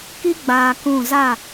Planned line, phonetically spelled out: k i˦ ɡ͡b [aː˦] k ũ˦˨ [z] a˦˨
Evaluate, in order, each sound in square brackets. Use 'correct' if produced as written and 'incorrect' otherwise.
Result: incorrect: aː˨, correct

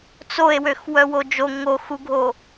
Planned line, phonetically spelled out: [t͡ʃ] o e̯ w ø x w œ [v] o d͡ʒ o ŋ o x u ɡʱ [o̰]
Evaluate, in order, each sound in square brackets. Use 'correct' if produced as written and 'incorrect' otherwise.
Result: incorrect: t͡s, incorrect: w, incorrect: o

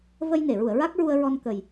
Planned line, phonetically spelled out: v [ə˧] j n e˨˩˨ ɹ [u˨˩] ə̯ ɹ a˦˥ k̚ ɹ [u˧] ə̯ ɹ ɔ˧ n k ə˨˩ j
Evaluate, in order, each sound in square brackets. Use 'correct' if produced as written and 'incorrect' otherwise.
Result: correct, incorrect: u˨˩˨, correct

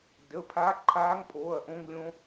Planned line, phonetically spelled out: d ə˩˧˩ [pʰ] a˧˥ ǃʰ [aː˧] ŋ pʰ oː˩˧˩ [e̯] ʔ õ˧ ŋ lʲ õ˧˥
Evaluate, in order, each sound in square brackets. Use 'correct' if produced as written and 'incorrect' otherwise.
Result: correct, incorrect: aː˧˥, incorrect: ɐ̯

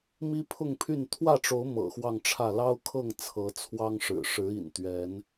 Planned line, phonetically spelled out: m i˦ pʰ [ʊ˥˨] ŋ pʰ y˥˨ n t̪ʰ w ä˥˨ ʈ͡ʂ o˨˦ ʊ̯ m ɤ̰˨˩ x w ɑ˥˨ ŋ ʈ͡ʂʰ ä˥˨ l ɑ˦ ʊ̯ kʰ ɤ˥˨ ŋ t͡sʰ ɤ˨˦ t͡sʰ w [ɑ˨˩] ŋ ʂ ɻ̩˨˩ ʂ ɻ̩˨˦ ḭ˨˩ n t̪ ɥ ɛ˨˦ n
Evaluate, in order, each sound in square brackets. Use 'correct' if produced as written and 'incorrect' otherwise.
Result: correct, incorrect: ɑ˦

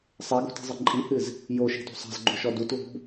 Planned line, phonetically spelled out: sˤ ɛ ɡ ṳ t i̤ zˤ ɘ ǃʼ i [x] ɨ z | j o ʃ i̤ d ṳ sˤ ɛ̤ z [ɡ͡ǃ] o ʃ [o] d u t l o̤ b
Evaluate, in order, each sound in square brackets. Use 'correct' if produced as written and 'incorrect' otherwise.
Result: incorrect: h, correct, incorrect: ɔ

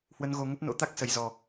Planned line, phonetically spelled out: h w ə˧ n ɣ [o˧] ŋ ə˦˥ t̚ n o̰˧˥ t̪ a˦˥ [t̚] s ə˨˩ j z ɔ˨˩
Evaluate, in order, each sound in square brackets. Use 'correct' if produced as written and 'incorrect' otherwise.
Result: correct, incorrect: k̚

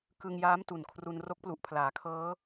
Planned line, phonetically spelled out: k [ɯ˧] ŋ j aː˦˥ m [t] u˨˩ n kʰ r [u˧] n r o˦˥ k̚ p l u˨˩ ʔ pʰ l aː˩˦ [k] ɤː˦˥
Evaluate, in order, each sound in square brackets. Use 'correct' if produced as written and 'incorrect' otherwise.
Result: correct, correct, correct, incorrect: kʰ

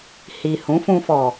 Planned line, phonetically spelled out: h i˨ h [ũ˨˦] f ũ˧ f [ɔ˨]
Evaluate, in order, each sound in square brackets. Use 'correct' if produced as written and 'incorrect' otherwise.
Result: correct, correct

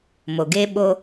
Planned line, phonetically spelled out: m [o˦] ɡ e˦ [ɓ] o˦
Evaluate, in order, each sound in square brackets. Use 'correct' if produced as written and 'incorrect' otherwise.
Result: incorrect: o˨, correct

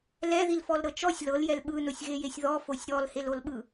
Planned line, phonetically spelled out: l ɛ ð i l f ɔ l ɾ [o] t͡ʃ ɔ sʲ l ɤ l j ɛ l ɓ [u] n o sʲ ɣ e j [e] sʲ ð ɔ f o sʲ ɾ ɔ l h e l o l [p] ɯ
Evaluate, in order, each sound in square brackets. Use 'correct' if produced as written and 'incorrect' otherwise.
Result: incorrect: ɤ, incorrect: ɯ, correct, incorrect: ɓ

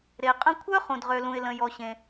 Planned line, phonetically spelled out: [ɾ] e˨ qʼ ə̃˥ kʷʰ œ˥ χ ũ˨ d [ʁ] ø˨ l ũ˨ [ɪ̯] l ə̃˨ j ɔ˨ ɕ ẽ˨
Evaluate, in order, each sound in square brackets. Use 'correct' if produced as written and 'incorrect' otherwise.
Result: correct, correct, correct

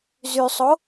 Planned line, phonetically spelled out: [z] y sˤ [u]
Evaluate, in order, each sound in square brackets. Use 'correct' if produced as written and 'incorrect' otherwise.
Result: correct, incorrect: o

